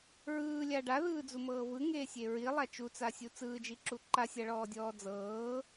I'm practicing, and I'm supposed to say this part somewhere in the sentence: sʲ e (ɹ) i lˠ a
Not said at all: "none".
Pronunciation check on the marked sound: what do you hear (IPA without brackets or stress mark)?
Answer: ɹ